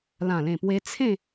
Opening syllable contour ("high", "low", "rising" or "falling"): low